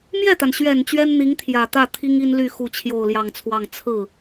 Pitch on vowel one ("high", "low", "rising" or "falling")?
falling